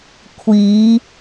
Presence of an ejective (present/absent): absent